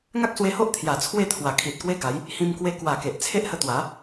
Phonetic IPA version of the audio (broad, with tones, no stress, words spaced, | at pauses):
ŋa˦k̚swe˧ho˦ʔ t̪ʰja˨˩t͡sʰwe˥˧t̪ʰwa˨˩ kʰi˨t̚kwe˦ɡa˨˦j | hĩ˧mkwe˧ kwa˨˩ ke˨ʔt͡sʰe˦ʔ hə˧t̪wa˨˦